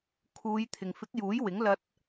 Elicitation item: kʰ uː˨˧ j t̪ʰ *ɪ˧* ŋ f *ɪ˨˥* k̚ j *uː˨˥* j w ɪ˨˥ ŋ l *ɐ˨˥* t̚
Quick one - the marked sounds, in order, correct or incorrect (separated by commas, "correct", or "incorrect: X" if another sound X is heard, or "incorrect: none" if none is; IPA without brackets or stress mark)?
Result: incorrect: ɪ˨, correct, correct, incorrect: ɐ˧